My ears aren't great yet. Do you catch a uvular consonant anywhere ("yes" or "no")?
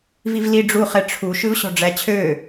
yes